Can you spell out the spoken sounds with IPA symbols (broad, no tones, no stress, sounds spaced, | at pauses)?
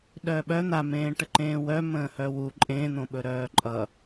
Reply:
ɗ œː ɓ œ n̪ a m ẽː ʈ ə ǃ ẽː w œ m ə̃ː h œ w u ǃʼ ẽː n̪ õ ɓ ɵ ɾ œː ǃʼ ʌ